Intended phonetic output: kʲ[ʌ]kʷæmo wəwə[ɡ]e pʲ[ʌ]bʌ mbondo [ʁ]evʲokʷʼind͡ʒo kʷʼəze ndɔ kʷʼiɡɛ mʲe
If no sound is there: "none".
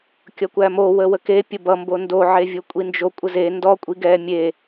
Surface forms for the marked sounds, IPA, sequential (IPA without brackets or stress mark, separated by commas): ʌ, k, ə, ʕ